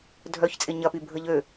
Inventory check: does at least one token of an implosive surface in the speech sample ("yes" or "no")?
no